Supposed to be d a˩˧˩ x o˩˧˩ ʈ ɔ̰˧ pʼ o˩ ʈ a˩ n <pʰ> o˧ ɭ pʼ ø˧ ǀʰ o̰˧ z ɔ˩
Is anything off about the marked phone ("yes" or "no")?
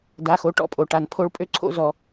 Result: no